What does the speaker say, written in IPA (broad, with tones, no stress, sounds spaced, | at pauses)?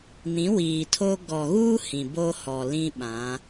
n ĩ˨˦ w iː˨ tʰ o˦ ɡ ɔ˨ ɣ uː˦ h ĩ˨ b o˦ h ɔ˨ l ĩ˦ ɓ ã˨˦